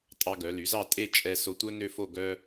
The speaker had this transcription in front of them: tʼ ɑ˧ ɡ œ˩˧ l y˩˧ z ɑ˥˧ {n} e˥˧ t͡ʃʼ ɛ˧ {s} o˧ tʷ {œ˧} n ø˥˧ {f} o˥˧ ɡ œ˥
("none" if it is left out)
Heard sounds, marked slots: tʼ, s, œ˥, f

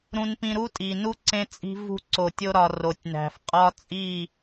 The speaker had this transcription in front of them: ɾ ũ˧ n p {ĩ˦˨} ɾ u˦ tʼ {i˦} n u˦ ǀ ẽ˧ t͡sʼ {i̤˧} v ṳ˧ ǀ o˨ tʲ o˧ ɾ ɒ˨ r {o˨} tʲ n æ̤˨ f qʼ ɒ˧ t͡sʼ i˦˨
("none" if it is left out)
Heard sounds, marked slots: ĩ˧, i˨, i̤˧, o˨

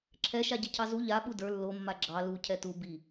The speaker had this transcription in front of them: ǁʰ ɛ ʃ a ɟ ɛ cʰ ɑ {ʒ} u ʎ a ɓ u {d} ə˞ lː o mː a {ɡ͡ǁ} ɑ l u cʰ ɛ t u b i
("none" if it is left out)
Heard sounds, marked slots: z, d, ɡ͡ǁ

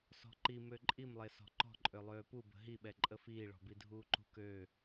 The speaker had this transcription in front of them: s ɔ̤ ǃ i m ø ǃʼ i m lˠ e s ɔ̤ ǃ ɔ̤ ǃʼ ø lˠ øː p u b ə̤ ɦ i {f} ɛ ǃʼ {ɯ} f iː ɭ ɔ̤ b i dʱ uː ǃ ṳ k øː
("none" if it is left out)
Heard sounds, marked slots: ɓ, ə

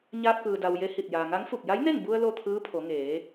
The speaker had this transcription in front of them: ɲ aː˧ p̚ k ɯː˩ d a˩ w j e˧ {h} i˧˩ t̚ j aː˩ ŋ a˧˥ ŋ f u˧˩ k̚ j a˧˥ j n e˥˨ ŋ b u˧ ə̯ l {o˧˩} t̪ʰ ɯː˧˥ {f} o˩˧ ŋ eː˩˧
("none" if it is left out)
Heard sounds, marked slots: h, o˥˨, pʰ

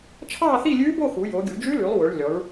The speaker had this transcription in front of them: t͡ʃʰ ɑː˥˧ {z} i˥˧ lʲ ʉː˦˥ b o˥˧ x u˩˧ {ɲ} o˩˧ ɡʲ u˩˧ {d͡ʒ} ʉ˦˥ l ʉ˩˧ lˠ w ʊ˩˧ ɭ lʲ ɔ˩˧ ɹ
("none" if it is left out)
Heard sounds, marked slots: θ, j, d͡ʒ

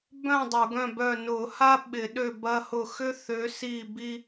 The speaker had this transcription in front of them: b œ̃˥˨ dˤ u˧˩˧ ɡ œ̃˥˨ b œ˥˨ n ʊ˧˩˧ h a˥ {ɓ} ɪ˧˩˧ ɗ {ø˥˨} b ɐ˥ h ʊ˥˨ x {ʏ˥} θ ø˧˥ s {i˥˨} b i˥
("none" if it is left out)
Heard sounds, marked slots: ɓ, ø˥˨, ʏ˥, i˥˨

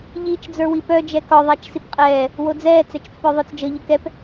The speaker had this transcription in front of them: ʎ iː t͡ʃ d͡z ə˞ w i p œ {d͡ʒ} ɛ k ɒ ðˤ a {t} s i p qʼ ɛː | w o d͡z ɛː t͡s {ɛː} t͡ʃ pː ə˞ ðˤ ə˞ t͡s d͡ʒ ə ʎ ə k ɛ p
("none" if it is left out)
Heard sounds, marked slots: d͡ʒ, t͡ʃ, ɛ

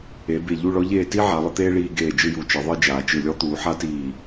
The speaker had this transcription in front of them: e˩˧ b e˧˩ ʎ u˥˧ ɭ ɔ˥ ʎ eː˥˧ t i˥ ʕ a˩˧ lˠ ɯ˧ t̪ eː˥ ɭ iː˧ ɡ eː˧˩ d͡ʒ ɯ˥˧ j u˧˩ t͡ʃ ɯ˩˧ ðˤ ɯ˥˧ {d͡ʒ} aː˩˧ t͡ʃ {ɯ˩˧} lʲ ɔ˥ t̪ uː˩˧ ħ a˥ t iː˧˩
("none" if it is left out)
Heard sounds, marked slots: d͡ʒ, ɯ˧˩

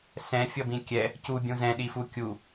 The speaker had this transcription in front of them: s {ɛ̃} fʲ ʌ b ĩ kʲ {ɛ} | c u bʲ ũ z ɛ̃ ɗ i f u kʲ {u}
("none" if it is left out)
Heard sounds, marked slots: ɛ̃, ɛ, u

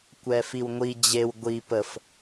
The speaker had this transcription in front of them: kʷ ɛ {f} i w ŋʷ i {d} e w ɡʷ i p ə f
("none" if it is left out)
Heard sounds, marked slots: f, d͡ʑ

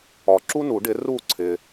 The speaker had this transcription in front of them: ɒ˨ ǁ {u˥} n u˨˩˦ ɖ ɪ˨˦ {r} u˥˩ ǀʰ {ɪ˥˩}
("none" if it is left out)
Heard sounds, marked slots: u˥, r, ɪ˨

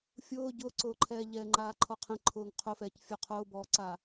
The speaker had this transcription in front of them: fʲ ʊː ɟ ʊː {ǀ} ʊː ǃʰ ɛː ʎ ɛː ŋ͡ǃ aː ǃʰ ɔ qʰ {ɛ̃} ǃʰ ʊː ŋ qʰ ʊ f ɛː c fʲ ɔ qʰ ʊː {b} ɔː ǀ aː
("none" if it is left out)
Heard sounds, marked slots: ǀ, ɛ̃, b

